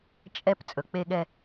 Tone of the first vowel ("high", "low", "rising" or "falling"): high